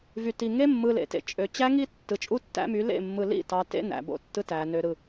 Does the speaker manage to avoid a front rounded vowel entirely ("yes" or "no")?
no